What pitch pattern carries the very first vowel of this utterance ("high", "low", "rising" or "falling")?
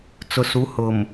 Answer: low